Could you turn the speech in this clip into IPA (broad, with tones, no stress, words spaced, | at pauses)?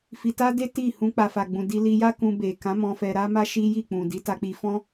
fi˧ta˦de˦ ti˦˨hũ˧ k͡pa˨fa˨ɡ͡bũ˨ di˧li˧ja˦kũ˧ be˨kã˨˦ mɔ̃˧fɛ˧ɾa˦ma˦ ʃi˦ ji˦˨k͡pũ˨ di˨˦ta˧k͡pi˧ fɔ̃˦